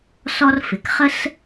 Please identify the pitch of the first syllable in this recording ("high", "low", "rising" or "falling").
high